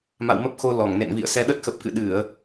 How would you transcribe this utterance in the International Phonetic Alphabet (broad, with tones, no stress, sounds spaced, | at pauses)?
m a̰˧˨ w m ə˦˥ p̚ x o˧ l ɔ˧˩ ŋ n ḛ˧˨ n v ḭ˧˨ ə̯ s ɛ˧ ɗ ə˦˥ t̚ x ə˨˩ p̚ k ɨ̰˧˨ ɗ ɨ˧˩˨ ə̯